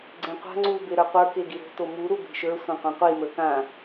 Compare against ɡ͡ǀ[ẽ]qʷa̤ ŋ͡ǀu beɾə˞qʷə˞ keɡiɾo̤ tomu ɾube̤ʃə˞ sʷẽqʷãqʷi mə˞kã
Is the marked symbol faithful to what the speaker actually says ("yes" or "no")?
yes